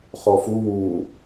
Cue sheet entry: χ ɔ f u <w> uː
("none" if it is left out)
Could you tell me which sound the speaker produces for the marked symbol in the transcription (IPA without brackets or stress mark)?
w